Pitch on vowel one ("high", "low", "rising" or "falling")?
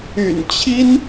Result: low